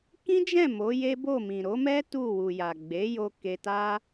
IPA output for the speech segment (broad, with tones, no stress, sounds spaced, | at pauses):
k ĩ˦ d͡ʒ ɛ̃˦˨ m o˨˦ j e˦ b o˦˨ m ĩ˨ ɾ o˨˦ m ɛ˦ t u˦˨ w u˨ j a˨ ɡ͡b e˨˦ j o˧ k e˧ t a˦